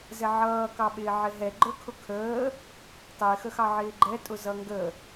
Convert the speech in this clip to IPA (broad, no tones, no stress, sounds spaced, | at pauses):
z ɛ ʕ ʌː k ɑ ɓ ɪː ʕ ɪ ɦ ɛ ɡ͡ǃ ə˞ kʰ ʊ kʰ əː | tˤ ɪː x ə x ɑ ʕ ɪː ɡ͡ǃ ɛ tʼ ʊ z ʌ ŋ ɡ ə